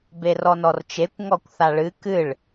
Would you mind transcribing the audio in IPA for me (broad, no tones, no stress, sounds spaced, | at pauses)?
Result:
b e r ɔ n ɔ r t͡ʃ e kʷ ŋ ɔ kʷ θ a ɭ ɨ k ɨ ɭ